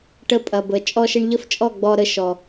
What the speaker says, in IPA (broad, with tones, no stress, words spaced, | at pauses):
ʈə˧pʼɐ˨bə˨ t͡ʃʼɔ˧ʃə˧ɳʎə˦ft͡ʃʼɔ˦˨ ɡ͡bɔ˧ɾə˧ʃɔ˨